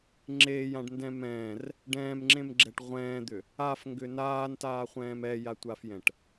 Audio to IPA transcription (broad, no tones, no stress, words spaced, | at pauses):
ŋ͡ǁeːjãɖndɛ̃ mɛ̃ːr | ɖɛ̃ːmŋ͡ǁẽmɡ͡ǁɛʈ ʁʷɛ̃ːd̪ʏ | afŋɡʏ naːntaːχʷɛ̃ːm ɛjatʷafjɛ̃ʈ